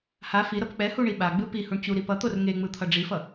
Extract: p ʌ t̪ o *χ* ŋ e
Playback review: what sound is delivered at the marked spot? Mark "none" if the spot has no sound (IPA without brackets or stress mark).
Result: r